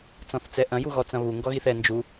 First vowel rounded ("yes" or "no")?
yes